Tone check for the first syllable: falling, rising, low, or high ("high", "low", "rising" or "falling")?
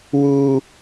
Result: high